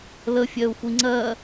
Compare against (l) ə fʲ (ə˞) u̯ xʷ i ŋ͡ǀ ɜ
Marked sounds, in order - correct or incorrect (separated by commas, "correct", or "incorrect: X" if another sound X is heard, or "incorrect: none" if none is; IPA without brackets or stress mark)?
correct, incorrect: ɜ